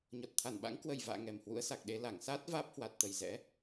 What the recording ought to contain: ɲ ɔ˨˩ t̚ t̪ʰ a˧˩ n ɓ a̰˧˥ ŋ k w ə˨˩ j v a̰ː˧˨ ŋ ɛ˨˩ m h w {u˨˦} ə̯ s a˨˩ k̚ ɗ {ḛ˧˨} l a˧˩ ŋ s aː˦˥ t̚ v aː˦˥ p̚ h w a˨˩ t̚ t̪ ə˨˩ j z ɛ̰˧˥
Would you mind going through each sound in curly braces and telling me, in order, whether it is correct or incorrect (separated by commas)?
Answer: incorrect, incorrect